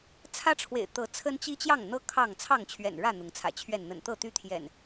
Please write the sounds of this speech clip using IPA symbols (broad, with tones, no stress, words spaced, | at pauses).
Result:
t͡sʰä˦ʈ͡ʂʰwḛ˨˩ɪ̯ t̪ɤ˨˦t͡sʰə˦nt͡ɕi˦ t͡ɕjɑ˥˨ŋn̪ɤ˦ kʰɑ˥˨ŋ t͡sʰɑ˥˨ŋt͡ɕʰɥɛ̰˨˩nɻä˥˨ n̪ʊ˨˦ŋt͡sʰä̰˨˩t͡ɕʰɥɛ˥˨n n̪ə̰˨˩nt̪ɤ˥˨t̪y˦t̪ʰjɛ̰˨˩n